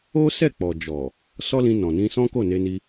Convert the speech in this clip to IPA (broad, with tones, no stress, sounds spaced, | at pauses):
o˦ s ɛ˦˨ k͡p ɔ˨ d͡ʒ ɔ˨ | s ɔ˦ l ĩ˧ n ɔ̃˨ n ĩ˧ s ɔ̃˦ k o˦˨ n e˧ n i˧